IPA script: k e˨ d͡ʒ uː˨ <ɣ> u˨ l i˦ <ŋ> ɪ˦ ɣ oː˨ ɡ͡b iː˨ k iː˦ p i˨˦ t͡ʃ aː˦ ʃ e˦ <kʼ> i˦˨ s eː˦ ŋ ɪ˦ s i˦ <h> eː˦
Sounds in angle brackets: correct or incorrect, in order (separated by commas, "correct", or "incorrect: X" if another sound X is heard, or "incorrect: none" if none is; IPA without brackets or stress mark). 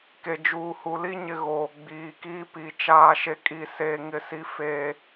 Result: incorrect: h, incorrect: ɲ, correct, incorrect: f